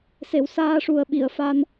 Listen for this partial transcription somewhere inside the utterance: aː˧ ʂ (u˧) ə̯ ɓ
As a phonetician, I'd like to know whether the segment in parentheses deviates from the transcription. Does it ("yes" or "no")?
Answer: yes